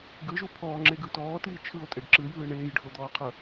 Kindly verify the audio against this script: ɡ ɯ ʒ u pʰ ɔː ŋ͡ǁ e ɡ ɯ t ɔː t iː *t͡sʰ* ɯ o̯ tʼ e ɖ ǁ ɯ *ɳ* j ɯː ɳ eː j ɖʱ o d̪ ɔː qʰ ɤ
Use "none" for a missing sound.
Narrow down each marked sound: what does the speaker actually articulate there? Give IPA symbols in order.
t͡ʃʰ, none

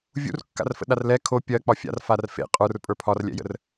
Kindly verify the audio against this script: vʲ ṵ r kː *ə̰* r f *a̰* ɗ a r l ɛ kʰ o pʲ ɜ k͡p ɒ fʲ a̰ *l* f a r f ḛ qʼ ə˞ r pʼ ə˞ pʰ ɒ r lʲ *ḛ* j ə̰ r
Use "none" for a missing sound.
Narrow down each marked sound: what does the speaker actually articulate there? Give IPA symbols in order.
a̰, ə̰, r, ɛ̰

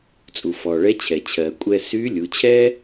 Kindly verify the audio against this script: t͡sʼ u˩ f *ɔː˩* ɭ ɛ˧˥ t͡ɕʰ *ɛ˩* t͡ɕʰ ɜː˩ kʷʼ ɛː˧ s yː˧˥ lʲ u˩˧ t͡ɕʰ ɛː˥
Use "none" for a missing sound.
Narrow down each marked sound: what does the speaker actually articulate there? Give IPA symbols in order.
ɔː˩, ɛ˩

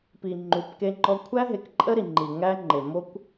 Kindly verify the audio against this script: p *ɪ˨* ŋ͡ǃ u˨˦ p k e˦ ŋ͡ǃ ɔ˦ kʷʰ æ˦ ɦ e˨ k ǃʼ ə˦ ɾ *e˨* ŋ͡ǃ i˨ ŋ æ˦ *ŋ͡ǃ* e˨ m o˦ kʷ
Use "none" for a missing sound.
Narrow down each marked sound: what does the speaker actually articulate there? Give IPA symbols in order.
i˨, i˨, ŋ͡ǃ

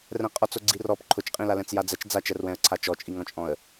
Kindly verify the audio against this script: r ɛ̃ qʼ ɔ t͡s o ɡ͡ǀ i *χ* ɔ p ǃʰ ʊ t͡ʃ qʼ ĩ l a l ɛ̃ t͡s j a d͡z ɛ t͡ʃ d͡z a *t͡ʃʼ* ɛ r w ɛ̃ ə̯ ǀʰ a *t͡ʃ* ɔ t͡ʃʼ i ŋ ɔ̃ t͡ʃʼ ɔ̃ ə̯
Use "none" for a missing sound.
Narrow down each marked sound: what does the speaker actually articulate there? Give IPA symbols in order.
r, t͡ʃ, t͡ʃ

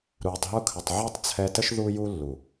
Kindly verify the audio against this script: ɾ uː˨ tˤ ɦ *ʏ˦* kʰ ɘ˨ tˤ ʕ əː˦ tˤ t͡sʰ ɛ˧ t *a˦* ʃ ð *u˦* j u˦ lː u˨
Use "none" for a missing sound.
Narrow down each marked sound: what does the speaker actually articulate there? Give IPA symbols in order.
u˦, ə˦, u˦

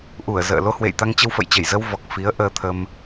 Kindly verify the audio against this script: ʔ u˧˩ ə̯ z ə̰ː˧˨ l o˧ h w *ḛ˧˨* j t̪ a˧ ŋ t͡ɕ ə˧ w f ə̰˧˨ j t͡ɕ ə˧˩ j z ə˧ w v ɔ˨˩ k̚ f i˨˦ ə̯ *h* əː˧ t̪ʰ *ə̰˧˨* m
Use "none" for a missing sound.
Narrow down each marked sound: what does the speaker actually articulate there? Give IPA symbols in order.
ḛ˧˨, ʔ, ə˧

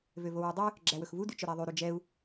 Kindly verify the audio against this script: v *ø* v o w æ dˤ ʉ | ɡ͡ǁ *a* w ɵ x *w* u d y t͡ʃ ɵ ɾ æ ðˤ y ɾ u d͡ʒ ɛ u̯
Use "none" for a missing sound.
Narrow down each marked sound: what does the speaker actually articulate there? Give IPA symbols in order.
ø, æ, v

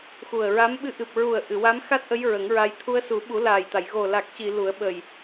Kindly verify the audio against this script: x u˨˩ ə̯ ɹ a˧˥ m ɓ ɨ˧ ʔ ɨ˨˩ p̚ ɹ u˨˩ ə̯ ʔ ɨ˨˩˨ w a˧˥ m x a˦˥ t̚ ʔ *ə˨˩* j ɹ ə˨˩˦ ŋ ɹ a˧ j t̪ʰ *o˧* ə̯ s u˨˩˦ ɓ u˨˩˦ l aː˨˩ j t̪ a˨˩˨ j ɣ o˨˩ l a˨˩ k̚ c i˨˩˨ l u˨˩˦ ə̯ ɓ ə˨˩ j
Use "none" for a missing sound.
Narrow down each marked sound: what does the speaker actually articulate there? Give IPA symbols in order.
ə˧˥, u˧

